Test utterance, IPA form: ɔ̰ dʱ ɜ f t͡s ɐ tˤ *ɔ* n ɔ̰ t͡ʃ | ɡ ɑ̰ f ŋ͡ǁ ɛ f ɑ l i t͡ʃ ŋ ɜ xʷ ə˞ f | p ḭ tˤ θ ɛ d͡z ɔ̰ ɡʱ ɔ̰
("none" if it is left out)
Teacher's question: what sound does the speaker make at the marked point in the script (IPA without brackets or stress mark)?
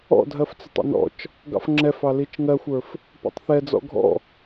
ɔ̰